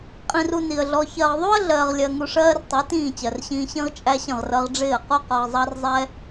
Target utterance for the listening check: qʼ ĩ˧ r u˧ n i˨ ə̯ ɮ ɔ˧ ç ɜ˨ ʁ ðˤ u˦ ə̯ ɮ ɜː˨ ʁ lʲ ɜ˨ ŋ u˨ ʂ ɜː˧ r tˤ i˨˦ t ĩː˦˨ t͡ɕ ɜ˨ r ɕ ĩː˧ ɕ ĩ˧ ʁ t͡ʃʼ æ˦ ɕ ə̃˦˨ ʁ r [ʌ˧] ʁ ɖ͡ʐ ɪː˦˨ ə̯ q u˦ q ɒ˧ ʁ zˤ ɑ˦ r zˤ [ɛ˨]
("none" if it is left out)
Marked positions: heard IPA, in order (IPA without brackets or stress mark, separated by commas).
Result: ʌ˧, ɛ˦